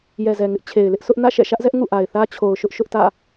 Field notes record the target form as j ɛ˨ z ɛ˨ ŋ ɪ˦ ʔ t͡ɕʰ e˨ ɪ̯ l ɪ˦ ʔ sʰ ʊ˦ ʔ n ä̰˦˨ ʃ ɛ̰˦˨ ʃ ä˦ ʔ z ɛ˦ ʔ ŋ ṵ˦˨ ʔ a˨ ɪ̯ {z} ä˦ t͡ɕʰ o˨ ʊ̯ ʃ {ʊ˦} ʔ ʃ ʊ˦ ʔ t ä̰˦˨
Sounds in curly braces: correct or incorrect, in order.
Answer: incorrect, correct

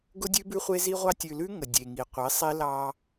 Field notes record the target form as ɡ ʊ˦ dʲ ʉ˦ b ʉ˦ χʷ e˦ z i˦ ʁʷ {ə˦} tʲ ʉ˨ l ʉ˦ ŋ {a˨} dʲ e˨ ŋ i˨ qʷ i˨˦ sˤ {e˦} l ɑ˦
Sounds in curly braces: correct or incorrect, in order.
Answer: incorrect, incorrect, incorrect

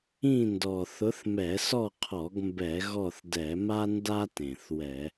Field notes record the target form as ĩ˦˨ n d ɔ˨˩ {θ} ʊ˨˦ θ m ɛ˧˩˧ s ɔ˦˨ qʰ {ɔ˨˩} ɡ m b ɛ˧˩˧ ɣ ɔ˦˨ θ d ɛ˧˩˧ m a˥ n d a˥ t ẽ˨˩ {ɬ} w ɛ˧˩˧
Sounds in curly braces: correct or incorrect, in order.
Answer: correct, incorrect, incorrect

